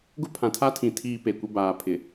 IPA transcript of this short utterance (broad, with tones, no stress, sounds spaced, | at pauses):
ɡ ʊ˦ pʰ ã˨ tʰ a˦ tʰ ĩ˨ tʰ iː˦ p e˨ kʷ ɪ˦ b aː˨ pʰ ɪ˨